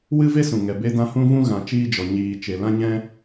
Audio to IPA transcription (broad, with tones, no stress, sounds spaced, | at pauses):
w ɨ˦ v e˦ s ũ˨ ŋ ɛ˨ b e˧ d ã˧ h ũ˧ v ũ˧ ɣ ã˨ t͡ʃ iː˧ d͡ʒ ɔ˨ ɲ iː˨ t͡ʃ e˨ l ã˦ ɲ ɛ̃˦